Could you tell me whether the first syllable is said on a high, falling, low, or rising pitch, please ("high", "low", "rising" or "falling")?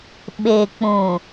low